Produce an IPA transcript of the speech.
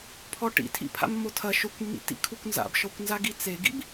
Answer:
pʰ ɔ ʈ ḭ tʰ ḭ pʰ a̰ mː o tʰ ɐ ʃ o kʷ mː ḭ tː ḭ kʰ u kʷ n z a̰ b ʃ ɔ kʷ n z a ɡ i t͡s e ɡ ḭ b

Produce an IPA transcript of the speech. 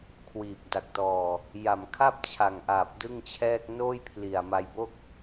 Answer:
kʰ w iː˨˩ p̚ d a˨˩ k̚ t ɔː˨˩ | j a˨˩ m kʰ a˥˩ p̚ t͡ɕʰ a˨˩ ŋ ʔ aː˨˩ p̚ d ɯ˥˩ ŋ t͡ɕʰ ɛː˥˩ k̚ n oː˥˩ j pʰ l i˨˩ a̯ m a˧ j b o˥˩ k̚

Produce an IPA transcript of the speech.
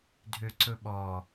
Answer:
dʱ ø ǀ ɵ ɓ ɔ

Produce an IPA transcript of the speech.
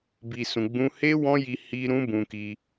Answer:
b i˧ s ũ˧ ɡ͡b ũ˦ h e˦ w ɔ̃˦ j i˧ h i˧ ɾ ũ˦ b ũ˧ k i˧

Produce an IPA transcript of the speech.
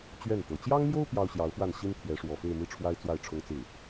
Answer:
t͡ɕ ɥ ɛ˥˩ n t̪ ɤ˨˩ t͡ɕ j ɑ˥ ŋ m j o˥ ʊ̯ p j ɑ˥ ʊ̯ ɕ j ɑ˧˥ ʊ̯ f w a˥˩ n ɕ i˥ n t̪ʰ j ɛ˧˥ ʂ w ɔ˨˩ f e˥˧ ɪ̯ m i˥˩ ʈ͡ʂʰ w a˥ ɪ̯ t͡s w a˥˩ ɪ̯ ʈ͡ʂʰ ʊ˥ ŋ t͡s ɹ̩˥˩

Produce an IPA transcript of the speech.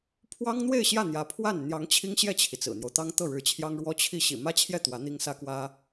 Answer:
pʰ w ɑ˥ ŋ n̪ w e˥˧ ɪ̯ ɕ j ä˥˩ n̪ j ä˧˥ pʰ w a˥˩ n n̪ j ɑ˧˥ ŋ t͡ɕʰ i˥ ŋ ɕ j ɛ˥˩ t͡ɕʰ i˩ t͡s ɹ̩˨˩ n̪ j o˦ ʊ̯ t̪ ɑ˥ ŋ t̪ ɤ˥˩ ɻ ɻ̩˧˥ t͡ɕʰ j ɑ˥ ŋ ɻ w ɔ˥ t͡ɕʰ i˥˩ ɕ ḭ˨˩ m ä˥ t͡ɕʰ j ɛ˥˩ t̪ w ä˧˥ n̪ i˥ ŋ s ä˥ k w ä˥

